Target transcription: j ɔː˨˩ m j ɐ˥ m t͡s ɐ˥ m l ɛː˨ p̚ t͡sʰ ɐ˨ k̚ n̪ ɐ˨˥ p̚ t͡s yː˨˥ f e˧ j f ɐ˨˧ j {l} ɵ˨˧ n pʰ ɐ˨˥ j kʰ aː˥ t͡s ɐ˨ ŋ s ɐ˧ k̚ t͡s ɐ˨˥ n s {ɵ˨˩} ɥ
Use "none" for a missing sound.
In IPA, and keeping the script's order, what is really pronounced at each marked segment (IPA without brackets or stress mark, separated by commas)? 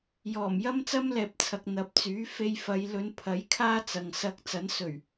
l, ɵ˨˩